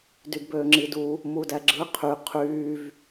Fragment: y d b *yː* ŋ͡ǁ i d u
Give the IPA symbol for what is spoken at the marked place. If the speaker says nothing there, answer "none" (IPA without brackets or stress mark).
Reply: øː